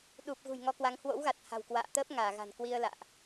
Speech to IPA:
ɗ u˨˩ p̚ ɣ ṳ˨˩ j ŋ ɔ˧ k w a˨˦ ŋ h w o̰˧˥ w ɣ a˨˩ t̚ h a̤˨˩ w k w a̰ː˧˨ t̪ əː˦˥ p̚ ŋ aː˧˩ ɣ a̤˨˩ n k w i˧ ə̯ l a̰ː˧˨ ʔ

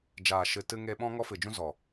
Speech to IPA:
d͡ʒ aː˨ ʃ ɨ˨ t ɨ˧ ŋ e˧ ɓ ɔ̃˦ ŋ ɔ˦ f ɨ˨ d͡ʒ ũ˦ z ɔ˨

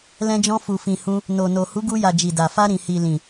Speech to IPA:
l ɛ̃˧ d͡ʒ ɔ̃˧ f u˨ f ĩ˨ h ũ˧ | n o˨ n o˨ h u˨˦ ɡ u˧ j a˨ d͡ʒ i˨ d a˨ f a˧ ɾ ĩ˨ h i˨ l ĩ˨

